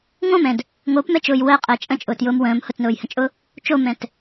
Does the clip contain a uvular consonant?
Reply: yes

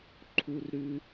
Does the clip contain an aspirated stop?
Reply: yes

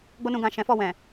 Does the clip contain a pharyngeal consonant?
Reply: no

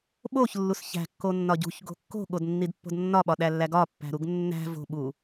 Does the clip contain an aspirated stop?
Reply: no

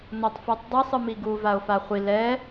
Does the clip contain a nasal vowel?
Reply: no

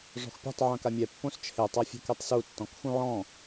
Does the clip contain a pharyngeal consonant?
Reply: yes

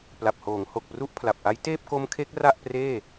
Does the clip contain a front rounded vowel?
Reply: no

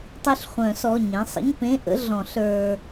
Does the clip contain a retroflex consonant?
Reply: no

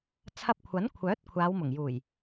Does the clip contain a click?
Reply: no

